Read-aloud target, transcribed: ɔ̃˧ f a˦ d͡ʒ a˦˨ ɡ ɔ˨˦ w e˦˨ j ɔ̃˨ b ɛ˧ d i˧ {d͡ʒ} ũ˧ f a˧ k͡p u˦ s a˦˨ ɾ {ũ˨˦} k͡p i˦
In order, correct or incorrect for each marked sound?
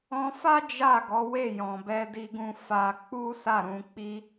incorrect: ɡ, correct

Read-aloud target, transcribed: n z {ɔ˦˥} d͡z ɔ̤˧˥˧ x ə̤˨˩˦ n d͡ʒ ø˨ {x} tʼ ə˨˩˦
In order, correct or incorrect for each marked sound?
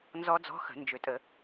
correct, incorrect: none

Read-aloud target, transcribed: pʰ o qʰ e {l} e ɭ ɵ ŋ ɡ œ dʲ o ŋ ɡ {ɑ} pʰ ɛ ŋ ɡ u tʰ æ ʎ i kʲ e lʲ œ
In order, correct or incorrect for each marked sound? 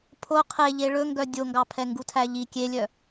incorrect: ʎ, correct

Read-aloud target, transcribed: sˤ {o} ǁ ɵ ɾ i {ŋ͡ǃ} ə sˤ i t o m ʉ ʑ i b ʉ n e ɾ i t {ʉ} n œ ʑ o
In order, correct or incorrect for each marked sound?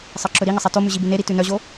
incorrect: ɤ, incorrect: ŋ, correct

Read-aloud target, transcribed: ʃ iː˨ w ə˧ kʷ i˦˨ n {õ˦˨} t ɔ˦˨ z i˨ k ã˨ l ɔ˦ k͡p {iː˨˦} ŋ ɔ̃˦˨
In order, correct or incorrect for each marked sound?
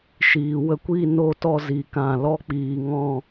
incorrect: o˦˨, incorrect: iː˨

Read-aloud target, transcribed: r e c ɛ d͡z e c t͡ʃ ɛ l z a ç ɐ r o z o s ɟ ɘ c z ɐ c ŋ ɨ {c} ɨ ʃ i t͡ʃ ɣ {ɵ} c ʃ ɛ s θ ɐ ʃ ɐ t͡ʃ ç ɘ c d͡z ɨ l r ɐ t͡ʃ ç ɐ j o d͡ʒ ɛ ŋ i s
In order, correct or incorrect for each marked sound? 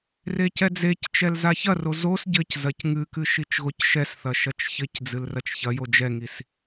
incorrect: k, incorrect: o

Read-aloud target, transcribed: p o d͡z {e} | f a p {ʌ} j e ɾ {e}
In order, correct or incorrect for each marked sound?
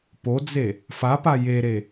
correct, incorrect: a, correct

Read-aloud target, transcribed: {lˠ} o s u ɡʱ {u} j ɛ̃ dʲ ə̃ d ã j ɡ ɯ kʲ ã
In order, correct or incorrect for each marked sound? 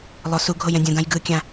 correct, incorrect: o

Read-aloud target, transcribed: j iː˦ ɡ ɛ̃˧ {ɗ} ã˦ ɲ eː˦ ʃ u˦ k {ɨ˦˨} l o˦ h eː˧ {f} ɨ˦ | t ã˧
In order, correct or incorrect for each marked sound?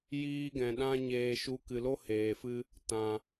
correct, incorrect: ɨ˧, correct

